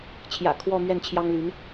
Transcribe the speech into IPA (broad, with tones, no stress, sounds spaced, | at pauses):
t͡ɕʰ j ä̰˨˩ kʰ w ɔ˥˧ m ɥ ɛ˥˩ n t͡ɕʰ j ɑ˥ ŋ l y˧˥ n